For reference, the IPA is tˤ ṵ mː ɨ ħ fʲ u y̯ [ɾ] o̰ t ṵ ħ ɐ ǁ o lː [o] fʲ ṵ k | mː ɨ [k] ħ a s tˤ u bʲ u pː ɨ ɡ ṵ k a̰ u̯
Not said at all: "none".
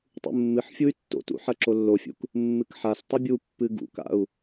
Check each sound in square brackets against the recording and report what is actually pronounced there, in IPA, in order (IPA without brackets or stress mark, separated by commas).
tː, o, k